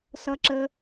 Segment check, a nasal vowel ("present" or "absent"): absent